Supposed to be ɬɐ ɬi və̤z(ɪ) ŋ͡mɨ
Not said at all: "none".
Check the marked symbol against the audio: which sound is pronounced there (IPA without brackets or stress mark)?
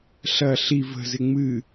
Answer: ɪ